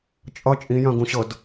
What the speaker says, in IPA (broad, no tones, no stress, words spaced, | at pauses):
t͡ʃʼʌ t͡ʃʼĩjœ̃ɡũɕɤd